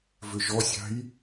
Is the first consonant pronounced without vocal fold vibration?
no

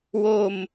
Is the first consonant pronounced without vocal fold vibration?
no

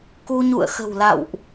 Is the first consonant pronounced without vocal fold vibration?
yes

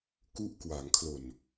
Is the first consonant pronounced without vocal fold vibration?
yes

